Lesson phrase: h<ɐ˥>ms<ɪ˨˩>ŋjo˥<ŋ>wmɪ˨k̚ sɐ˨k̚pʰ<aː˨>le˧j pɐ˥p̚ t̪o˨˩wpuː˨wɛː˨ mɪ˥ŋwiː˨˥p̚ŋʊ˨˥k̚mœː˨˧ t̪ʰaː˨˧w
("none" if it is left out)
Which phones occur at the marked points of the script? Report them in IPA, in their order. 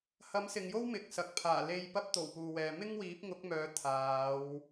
ɐ˨˥, ɪ˨, none, aː˨˩

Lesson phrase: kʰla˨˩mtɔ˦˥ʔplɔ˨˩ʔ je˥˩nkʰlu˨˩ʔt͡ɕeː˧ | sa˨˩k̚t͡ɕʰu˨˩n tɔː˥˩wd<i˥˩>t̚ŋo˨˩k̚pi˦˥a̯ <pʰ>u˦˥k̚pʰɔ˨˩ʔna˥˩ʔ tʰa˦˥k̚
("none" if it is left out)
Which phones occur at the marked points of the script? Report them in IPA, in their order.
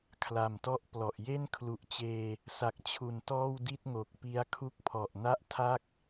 i˥˩, kʰ

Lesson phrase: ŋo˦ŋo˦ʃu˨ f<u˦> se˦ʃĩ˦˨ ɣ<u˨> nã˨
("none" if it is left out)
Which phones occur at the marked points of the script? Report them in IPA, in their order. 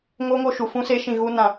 ũ˦, u˦

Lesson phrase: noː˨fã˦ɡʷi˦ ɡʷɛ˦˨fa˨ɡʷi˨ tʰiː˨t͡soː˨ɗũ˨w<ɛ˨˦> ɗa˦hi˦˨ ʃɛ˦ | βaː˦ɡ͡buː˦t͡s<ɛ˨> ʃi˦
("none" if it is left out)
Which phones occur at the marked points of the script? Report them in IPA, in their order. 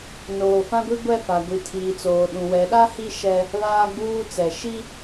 ɛ˨˦, ɛ˨

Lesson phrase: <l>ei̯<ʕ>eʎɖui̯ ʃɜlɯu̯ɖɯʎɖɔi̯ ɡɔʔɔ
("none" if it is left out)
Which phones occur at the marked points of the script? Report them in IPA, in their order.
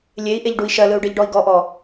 lʲ, ʔ

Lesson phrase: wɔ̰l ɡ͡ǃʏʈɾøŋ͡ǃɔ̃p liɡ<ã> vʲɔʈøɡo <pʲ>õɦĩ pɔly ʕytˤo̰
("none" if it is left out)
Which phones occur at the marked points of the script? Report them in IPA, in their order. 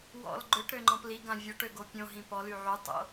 ã, pʲ

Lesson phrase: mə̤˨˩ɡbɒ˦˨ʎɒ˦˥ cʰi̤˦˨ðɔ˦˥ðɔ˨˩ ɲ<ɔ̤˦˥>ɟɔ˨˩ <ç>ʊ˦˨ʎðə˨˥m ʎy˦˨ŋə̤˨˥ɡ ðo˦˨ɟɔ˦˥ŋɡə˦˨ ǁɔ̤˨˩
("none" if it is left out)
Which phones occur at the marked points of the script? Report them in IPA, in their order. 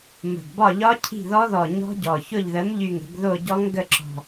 ɔ̤˦˥, ç

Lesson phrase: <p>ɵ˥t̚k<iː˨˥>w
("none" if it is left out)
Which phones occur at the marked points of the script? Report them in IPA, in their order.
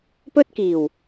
p, iː˨˩

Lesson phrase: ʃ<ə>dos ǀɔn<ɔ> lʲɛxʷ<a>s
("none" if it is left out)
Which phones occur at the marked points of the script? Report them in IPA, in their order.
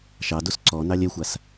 ɑ, ɑ, a

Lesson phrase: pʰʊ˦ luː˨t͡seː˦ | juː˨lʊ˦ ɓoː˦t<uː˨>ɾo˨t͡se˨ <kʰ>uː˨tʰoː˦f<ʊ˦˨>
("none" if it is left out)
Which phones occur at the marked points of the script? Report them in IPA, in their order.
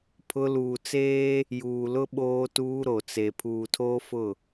uː˦, pʰ, ʊ˦˨

